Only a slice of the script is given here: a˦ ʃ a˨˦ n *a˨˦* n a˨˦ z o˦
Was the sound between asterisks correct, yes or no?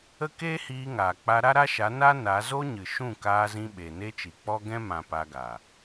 no